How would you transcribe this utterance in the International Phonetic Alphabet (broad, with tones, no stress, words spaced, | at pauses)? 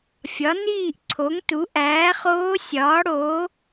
fʲɒ˩˥niː˥˨ʔǀʰo˩˥ŋtu˩˥ ʔæː˩˥χoː˧˥sʲɒː˩˥ɽoː˩˥